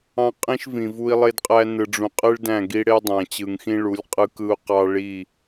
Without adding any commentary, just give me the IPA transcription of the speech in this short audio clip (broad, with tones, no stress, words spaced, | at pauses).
ɑ̃˦qʼĩ˦ʃ vĩ˨vu˦i̯lˠe˦dqʼæ˦ nɯ˨ɖ͡ʐũ˨qʼɯ˦ɭ dæ̃˦˨ɡi˦ ɽe˦ dˤæ̃˨t͡ɕɯ˨ŋxĩ˦ɭu˨˦lʲ qʼɯ˦kɯ˦u̯qɑ˦ ɭi˦˨